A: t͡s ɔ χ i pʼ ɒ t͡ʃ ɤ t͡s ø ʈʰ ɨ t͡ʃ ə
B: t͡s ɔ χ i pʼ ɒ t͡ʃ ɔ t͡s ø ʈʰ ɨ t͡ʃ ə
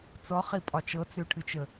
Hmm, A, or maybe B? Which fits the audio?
A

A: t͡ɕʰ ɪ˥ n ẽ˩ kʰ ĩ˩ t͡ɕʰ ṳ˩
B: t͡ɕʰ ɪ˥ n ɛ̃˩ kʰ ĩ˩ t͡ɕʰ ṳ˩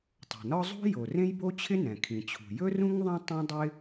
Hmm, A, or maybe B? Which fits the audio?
B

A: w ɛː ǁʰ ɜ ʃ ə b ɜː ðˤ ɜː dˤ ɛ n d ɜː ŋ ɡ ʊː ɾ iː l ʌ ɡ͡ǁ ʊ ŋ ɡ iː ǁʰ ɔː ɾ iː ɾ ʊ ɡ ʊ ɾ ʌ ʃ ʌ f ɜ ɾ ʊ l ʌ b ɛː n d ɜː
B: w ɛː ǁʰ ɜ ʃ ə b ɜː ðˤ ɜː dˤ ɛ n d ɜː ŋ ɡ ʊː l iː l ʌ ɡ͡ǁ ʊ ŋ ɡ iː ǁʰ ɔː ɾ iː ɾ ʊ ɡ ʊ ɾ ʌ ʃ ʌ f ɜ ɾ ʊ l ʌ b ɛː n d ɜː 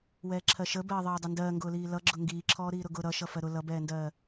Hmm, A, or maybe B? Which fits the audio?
B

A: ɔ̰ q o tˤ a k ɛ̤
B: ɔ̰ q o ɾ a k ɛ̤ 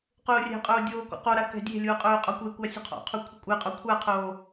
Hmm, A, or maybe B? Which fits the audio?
B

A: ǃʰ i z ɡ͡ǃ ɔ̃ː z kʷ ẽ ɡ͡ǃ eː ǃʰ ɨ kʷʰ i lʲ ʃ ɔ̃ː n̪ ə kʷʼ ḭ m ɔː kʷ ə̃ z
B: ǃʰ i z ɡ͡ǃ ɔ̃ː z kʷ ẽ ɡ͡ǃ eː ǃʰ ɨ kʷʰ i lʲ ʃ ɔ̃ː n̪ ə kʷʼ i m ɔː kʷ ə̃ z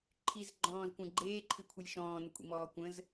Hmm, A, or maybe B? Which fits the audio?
A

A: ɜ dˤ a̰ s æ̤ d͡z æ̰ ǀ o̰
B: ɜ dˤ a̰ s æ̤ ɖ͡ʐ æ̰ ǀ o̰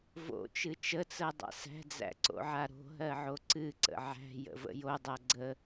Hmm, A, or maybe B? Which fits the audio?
A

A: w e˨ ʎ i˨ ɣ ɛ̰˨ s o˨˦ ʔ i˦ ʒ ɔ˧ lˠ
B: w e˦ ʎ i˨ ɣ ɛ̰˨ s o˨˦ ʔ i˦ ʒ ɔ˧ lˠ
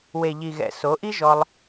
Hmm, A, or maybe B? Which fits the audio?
A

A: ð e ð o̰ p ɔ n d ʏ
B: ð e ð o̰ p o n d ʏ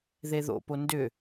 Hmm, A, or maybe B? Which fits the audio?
B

